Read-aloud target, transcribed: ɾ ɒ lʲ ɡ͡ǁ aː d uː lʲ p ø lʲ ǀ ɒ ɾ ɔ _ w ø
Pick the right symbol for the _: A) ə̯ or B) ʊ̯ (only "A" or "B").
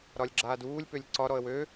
A